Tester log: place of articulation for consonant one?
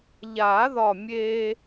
palatal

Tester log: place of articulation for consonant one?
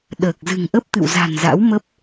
alveolar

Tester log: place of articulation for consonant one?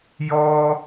palatal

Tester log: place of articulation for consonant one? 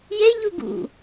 palatal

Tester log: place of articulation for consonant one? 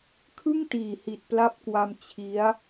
velar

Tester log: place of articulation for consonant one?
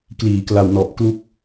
velar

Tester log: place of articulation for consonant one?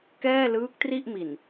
velar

